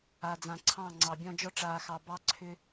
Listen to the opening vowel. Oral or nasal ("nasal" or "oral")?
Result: oral